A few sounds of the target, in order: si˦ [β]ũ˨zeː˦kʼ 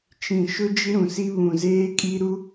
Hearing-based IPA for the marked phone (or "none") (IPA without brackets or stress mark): β